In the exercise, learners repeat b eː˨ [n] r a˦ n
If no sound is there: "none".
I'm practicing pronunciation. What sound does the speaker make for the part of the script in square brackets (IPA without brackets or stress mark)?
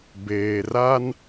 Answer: none